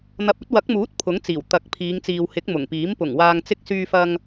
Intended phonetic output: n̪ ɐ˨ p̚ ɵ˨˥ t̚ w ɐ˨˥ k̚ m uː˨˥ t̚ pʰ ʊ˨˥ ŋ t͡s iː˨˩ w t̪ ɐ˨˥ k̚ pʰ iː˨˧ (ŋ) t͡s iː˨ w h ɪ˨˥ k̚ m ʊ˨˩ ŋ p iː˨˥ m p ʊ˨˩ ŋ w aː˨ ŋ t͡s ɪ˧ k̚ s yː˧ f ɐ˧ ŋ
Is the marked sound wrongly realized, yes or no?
no